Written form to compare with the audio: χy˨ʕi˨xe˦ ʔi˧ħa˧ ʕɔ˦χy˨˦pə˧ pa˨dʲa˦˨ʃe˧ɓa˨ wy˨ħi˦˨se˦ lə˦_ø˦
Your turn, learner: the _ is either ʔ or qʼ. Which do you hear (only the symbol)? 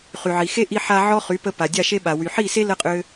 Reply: qʼ